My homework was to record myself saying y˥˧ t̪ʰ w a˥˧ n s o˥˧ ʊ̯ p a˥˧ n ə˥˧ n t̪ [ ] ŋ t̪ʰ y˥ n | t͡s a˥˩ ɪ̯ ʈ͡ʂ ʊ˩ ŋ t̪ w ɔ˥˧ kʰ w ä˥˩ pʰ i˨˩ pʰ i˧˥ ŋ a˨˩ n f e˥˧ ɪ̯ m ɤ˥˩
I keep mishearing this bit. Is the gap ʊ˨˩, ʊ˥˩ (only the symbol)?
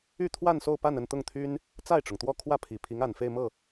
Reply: ʊ˥˩